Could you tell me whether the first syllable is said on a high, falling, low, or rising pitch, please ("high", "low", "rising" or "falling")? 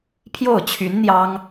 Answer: falling